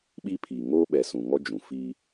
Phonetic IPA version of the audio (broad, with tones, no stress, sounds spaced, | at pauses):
ɓ iː˦ pʰ iː˨ ŋ oː˦ ɓ ɛ˨ s ũ˨ ŋ ɔ˦ d͡ʒ ũ˨ f iː˦